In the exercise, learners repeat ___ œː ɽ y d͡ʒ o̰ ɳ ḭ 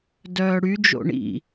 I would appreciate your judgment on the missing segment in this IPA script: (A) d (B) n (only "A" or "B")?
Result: A